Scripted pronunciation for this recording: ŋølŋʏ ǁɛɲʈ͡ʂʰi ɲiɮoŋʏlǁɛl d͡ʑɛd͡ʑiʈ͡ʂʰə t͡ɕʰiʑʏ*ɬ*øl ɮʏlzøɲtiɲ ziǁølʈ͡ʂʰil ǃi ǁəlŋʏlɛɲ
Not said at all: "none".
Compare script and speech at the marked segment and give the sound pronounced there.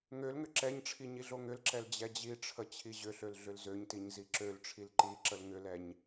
ɬ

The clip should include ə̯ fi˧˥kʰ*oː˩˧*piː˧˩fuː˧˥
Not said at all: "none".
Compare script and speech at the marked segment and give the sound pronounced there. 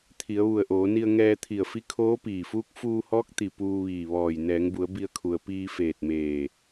oː˧˥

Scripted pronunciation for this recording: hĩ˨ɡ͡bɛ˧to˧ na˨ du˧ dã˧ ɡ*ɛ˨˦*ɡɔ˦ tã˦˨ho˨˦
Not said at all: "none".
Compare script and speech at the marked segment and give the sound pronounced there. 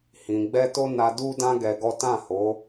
ɛ˧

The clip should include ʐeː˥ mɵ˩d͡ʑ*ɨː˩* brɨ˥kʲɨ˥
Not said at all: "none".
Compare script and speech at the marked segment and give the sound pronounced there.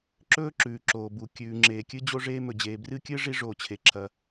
eː˩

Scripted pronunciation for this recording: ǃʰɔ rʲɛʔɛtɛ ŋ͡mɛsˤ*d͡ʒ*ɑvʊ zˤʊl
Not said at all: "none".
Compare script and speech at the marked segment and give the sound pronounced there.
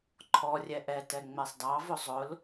d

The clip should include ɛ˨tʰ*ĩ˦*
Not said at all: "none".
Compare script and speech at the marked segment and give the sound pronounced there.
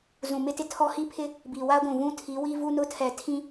ĩ˦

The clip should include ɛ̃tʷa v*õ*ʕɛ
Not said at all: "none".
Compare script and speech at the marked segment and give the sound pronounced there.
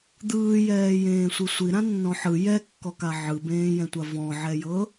ɔ̃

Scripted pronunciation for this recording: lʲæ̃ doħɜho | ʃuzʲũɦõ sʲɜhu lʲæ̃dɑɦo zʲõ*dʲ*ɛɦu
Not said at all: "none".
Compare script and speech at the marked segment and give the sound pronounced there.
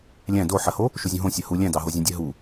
dʲ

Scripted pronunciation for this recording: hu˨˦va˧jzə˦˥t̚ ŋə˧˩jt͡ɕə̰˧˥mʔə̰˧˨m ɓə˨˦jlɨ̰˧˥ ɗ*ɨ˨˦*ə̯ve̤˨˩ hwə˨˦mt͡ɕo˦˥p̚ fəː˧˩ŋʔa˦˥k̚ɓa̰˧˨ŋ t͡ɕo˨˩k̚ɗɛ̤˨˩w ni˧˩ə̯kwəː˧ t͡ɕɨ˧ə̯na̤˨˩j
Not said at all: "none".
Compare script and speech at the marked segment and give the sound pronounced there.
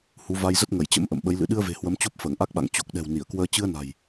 ɨ˧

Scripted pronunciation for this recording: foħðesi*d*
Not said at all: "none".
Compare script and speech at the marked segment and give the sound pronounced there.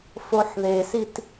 t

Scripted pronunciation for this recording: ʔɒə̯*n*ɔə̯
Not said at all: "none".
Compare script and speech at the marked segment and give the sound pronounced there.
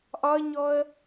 ɲ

